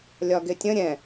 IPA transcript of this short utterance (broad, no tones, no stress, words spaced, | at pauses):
lʲɒɡɪtʲə̃ ɾʲɛ̃